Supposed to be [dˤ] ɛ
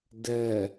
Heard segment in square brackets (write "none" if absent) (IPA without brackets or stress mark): d